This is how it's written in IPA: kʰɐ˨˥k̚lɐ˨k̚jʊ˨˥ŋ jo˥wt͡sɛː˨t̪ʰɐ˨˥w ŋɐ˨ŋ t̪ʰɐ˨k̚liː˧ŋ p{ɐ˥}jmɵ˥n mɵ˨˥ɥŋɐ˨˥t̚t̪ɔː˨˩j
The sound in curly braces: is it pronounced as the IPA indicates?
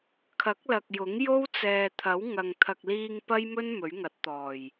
yes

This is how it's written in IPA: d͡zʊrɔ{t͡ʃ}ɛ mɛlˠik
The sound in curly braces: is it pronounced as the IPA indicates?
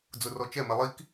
yes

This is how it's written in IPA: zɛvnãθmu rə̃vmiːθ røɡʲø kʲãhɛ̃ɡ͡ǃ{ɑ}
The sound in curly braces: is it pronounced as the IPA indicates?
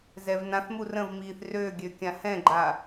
no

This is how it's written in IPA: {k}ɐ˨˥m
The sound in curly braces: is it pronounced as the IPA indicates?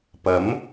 no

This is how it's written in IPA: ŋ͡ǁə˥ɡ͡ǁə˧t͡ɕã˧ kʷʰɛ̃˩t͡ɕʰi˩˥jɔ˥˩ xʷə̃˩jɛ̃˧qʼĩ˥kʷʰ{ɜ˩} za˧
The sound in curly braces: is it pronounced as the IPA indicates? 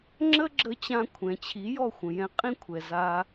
no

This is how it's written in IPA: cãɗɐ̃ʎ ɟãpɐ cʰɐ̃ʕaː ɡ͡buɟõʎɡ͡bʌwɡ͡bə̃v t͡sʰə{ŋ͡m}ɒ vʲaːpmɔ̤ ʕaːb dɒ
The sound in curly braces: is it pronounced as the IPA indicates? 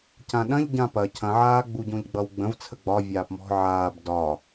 no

